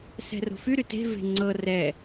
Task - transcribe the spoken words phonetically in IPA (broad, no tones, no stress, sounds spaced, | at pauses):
s ɛ̤ r o̤ f y ɾ y t e̤ v e̤ ŋ͡ǀ ɤ r ɛ